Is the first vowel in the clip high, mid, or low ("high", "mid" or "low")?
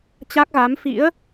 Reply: low